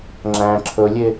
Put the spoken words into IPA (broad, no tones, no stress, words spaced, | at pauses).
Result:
ŋ͡ǁæ̃ ǁʰɵlʲe